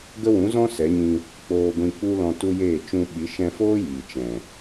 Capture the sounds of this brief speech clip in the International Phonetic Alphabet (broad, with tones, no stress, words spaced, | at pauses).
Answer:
ɡə˦wũ˨˦zɔ̃˦ sɛ˨˦ɲĩ˧ | k͡poː˧ɡʷĩ˧ k͡pu˦lɔ̃˧tu˦jeː˦˨ t͡ʃũ˧ɓi˨˦ ʃɛ̃˧foː˦ jiː˨t͡ʃɛ̃˨